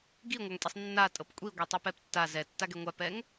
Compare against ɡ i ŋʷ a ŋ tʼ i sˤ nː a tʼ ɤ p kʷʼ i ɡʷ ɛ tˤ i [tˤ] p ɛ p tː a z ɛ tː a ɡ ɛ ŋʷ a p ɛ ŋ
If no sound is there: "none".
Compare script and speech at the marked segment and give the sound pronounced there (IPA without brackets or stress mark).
none